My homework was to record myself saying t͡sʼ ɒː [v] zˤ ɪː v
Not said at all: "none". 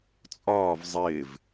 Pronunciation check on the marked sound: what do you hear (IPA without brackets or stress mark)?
v